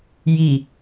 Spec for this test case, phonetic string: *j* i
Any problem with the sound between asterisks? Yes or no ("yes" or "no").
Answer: no